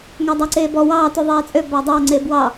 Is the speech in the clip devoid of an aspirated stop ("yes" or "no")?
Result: yes